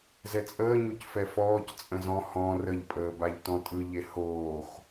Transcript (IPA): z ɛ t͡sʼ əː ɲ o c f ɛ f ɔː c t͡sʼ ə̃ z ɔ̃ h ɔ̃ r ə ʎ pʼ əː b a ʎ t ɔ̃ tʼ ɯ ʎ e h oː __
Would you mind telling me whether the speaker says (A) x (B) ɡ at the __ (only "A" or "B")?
A